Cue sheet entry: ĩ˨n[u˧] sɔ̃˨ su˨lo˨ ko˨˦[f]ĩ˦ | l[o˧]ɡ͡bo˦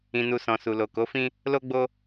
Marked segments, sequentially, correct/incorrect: incorrect, correct, incorrect

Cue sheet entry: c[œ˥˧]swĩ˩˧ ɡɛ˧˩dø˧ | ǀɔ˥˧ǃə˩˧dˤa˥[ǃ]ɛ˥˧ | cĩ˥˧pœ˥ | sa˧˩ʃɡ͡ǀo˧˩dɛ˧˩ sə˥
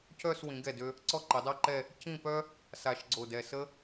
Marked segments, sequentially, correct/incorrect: correct, correct

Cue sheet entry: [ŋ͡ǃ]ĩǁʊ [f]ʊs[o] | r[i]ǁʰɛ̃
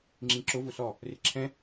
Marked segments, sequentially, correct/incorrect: incorrect, incorrect, incorrect, incorrect

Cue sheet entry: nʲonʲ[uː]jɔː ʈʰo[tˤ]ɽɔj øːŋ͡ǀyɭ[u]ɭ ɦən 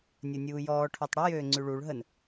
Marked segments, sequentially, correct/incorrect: correct, correct, correct

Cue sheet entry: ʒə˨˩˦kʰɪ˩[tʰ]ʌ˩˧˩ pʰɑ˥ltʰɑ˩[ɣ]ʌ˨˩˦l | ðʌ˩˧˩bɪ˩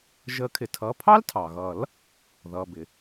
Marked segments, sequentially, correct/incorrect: correct, correct

